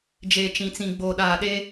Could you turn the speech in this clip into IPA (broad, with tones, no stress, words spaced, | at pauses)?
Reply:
d͡ʒe˨t͡ʃĩ˨t͡sĩ˨ ɡ͡boː˨ɗaː˨ɗe˦